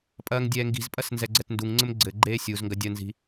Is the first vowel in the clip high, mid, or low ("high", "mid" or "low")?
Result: low